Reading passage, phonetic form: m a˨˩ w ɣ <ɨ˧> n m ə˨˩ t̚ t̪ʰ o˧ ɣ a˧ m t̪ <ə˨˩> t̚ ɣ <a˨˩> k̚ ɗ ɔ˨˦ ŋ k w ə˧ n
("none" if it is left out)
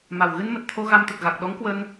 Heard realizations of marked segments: ɨ˧, ə˨˩, a˨˩

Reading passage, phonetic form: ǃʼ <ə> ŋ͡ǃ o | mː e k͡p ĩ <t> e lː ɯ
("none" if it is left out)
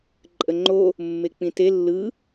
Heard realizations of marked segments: ə, t

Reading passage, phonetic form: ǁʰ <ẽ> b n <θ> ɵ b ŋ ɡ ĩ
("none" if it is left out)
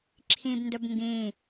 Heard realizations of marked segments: ĩ, d

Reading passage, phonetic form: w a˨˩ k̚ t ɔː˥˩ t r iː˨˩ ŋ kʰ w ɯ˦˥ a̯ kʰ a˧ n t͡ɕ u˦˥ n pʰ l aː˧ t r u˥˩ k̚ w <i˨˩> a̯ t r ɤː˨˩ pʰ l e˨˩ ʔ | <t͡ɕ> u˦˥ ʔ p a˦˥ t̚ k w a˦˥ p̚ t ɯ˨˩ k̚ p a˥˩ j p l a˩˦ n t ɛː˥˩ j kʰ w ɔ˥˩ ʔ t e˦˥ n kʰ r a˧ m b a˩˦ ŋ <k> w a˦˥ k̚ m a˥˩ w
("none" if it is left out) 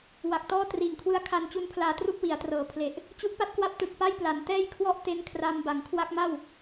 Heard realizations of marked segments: i˩˦, t͡ɕ, kʰ

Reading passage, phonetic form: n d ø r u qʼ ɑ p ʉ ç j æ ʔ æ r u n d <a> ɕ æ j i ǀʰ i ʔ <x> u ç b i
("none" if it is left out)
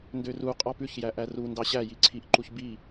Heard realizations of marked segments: ɑ, ǃ

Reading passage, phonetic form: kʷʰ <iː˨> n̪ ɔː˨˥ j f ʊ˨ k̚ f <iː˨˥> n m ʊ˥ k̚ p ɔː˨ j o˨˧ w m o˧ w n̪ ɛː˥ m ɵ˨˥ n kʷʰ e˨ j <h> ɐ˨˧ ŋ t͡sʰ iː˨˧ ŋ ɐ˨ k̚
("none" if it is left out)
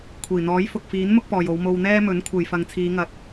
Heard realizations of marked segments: iː˨˩, iː˨˥, f

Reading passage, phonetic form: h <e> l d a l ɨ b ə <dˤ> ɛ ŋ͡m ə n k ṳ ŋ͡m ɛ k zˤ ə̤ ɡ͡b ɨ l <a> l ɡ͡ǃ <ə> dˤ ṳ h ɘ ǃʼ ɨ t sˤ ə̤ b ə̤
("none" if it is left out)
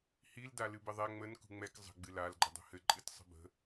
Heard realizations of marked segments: i, ðˤ, a, ə

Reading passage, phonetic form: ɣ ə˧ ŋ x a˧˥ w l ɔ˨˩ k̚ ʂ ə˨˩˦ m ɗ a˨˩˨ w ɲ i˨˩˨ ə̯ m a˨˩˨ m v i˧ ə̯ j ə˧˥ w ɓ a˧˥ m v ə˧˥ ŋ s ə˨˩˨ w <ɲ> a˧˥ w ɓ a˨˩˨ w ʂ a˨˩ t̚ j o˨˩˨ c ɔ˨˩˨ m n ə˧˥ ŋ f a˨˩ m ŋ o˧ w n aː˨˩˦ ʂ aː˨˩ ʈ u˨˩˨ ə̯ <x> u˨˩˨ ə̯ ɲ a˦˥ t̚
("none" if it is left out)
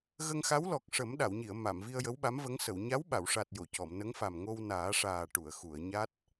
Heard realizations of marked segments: ɲ, x

